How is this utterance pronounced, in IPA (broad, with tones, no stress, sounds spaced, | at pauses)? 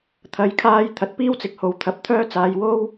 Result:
t̪ʰ ɐ˨˧ j kʰ aː˧ j t̪ʰ ɐ˨ t̚ p iː˥ w t͡s ɪ˨ k̚ h o˨˧ w t̪ʰ ɐ˧ p̚ t̪ʰ œː˥ t͡s aː˧ j w o˥ w